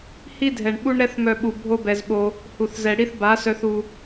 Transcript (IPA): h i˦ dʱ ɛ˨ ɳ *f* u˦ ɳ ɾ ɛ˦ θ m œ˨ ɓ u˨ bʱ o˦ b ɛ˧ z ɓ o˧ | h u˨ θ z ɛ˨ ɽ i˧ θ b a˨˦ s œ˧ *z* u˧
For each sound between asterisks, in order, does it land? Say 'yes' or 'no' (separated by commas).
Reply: no, no